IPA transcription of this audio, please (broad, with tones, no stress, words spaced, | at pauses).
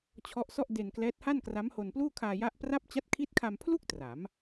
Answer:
t͡ɕʰɔ˦˥ʔsɔ˥˩ʔde˧nklɛː˦˥t̚ ha˥˩nkra˦˥mho˧n pluː˥˩kʰaː˧ ja˦˥ʔpra˥˩p̚ t͡ɕa˦˥t̚kʰiː˦˥t̚kʰa˧mpʰlu˥˩k̚ tra˩˦m